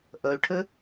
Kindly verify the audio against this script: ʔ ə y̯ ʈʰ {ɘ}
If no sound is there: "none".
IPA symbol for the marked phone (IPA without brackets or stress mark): ɘ